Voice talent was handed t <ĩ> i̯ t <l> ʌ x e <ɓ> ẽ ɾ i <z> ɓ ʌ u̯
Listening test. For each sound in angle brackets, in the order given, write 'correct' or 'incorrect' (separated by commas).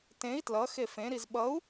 incorrect, correct, incorrect, correct